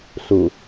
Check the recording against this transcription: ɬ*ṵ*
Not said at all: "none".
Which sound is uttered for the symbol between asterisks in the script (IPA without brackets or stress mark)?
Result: u